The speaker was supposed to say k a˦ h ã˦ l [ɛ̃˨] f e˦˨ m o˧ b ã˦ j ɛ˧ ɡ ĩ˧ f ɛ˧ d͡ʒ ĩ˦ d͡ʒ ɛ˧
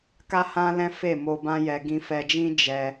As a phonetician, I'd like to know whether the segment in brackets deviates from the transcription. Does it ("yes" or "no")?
yes